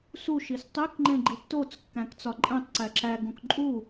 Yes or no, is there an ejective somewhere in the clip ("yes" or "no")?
yes